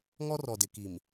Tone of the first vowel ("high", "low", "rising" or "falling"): high